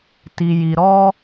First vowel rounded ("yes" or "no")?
no